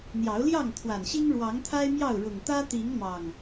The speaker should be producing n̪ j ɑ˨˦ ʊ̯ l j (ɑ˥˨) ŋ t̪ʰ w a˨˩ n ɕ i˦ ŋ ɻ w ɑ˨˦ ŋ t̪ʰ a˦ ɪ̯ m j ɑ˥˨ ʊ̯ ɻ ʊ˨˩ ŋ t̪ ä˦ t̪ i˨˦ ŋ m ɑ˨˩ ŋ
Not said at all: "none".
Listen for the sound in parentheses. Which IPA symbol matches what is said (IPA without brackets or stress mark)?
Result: ɑ˥˨